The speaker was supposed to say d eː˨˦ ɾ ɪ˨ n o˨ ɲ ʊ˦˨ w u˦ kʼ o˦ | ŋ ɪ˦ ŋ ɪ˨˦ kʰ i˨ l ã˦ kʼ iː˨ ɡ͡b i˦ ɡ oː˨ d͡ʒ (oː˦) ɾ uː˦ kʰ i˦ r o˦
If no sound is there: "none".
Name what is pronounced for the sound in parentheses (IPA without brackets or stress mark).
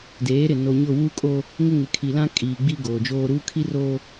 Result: oː˦